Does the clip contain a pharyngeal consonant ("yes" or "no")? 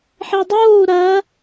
yes